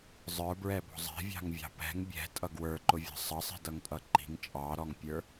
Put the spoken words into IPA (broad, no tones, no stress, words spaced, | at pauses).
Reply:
zˤə˞bɹɛbɔ̤ zˤɛ̤vʲɑ̤ŋvʲɑ̤ pɛ̤ŋ bʲɛ̤tʼʌ ɡwə˞ǃʊvʲɑ̤ sˤʌsˤi̤dʌŋtʼʌ ǃi̤ŋ t͡ʃʼɑɾɔŋpʲə˞